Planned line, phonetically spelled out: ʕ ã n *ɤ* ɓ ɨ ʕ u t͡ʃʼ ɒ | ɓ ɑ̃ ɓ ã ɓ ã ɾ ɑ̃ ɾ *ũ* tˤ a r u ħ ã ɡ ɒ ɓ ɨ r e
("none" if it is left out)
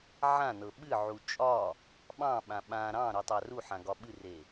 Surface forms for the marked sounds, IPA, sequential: ɤ, u

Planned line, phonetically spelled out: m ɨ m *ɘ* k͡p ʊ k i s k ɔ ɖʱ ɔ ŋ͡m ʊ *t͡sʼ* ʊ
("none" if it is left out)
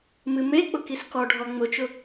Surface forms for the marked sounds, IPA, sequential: e, t͡ʃ

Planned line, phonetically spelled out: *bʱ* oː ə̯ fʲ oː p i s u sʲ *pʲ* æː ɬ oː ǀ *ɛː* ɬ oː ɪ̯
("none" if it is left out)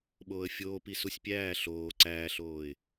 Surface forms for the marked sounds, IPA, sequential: ɓ, pʲ, æː

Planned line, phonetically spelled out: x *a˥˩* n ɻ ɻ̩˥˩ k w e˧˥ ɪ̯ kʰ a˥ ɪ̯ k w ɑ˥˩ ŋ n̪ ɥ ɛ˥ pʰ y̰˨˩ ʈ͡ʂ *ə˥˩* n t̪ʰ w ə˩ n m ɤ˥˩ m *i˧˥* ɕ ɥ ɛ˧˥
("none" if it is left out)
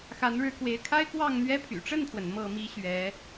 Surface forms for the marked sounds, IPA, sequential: a˧˥, ə˥˩, i˥

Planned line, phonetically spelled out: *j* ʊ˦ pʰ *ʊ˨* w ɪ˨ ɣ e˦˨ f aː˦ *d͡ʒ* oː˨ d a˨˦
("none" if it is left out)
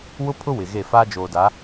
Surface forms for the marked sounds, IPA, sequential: w, ʊ˦, d͡ʒ

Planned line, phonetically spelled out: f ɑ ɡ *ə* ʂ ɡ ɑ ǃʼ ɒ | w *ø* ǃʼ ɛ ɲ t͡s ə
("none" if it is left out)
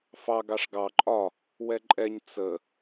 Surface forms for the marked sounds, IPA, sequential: ɑ, ɛ

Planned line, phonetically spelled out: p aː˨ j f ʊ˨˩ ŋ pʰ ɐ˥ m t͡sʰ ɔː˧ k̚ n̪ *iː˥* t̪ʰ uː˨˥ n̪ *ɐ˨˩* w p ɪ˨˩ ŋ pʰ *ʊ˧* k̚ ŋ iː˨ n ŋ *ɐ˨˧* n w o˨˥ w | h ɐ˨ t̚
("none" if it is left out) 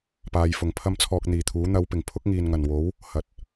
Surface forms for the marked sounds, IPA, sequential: iː˨, ɐ˨˧, ʊ˥, ɐ˨˩

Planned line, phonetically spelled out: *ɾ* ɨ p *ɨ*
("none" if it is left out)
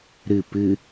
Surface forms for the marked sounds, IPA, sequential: ɾ, ɨ

